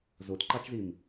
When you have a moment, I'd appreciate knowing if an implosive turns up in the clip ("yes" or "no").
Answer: no